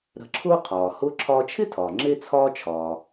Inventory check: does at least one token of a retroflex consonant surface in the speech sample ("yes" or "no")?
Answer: no